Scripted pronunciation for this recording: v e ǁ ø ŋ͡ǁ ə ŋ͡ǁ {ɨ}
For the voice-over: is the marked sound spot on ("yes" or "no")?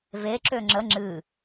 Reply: yes